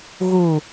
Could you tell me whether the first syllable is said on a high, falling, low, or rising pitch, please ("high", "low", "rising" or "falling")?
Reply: low